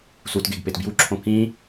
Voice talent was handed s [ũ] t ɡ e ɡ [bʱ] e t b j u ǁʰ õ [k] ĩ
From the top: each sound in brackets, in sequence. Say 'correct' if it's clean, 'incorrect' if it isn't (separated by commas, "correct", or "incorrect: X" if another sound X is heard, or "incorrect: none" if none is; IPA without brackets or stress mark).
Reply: incorrect: u, incorrect: p, correct